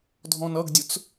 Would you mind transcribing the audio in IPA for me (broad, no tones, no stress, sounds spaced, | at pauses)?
dʱ ɔ̃ n ʌ ɡ dʲ ʊ t͡s